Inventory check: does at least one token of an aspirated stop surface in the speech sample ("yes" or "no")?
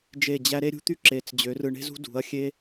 no